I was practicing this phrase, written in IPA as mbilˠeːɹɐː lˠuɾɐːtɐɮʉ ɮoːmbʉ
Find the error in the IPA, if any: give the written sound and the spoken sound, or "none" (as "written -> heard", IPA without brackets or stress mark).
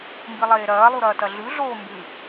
ɹ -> ɾ